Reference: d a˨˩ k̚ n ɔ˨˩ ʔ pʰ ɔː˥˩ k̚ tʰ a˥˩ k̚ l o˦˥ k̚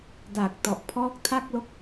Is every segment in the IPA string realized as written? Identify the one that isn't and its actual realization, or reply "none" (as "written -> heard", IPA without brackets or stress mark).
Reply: n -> t